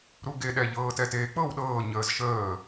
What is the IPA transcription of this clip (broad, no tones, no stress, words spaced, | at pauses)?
ɾuɡeɗɛ ʎɤːtɛteːk͡pɤw ɗɤː ɲəːzʃəː